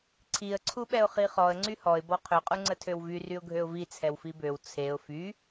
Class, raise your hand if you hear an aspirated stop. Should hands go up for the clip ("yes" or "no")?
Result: yes